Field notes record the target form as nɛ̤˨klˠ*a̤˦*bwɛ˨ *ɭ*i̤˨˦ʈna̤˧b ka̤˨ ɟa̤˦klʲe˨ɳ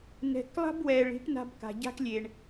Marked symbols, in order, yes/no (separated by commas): yes, yes